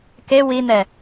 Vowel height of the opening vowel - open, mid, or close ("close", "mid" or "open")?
mid